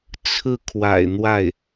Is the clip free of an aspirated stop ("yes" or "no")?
no